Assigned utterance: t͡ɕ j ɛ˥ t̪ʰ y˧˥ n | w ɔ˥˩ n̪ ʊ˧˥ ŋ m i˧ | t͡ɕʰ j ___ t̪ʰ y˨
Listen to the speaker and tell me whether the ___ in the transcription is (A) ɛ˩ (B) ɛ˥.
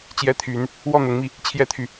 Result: B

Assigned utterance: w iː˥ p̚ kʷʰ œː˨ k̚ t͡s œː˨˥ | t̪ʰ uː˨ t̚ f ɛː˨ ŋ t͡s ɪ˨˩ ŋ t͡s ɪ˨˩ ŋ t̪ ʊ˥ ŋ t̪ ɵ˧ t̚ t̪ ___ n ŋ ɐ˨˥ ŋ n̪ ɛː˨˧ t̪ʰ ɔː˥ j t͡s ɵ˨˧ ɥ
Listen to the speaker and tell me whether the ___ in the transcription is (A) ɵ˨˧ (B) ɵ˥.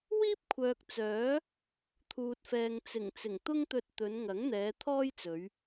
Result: A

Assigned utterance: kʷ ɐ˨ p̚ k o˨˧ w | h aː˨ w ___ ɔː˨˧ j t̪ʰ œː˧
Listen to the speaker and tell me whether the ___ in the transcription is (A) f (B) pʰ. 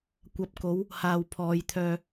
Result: B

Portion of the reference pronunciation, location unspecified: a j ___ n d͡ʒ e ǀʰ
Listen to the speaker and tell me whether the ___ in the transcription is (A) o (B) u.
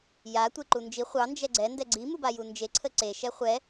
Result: B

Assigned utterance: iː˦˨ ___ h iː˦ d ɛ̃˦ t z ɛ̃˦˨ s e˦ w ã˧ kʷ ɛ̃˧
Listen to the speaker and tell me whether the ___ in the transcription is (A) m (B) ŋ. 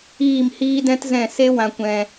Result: A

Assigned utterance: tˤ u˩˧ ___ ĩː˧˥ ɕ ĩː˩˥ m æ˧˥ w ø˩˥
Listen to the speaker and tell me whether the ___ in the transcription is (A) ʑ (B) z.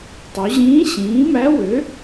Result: A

